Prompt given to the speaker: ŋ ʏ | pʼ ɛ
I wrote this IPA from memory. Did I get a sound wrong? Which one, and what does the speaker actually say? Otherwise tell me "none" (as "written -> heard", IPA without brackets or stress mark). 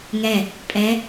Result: ʏ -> ɛ